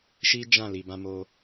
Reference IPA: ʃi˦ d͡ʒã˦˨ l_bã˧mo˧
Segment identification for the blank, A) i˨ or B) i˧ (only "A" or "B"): A